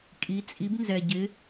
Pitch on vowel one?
rising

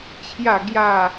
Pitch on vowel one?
falling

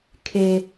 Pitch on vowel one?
high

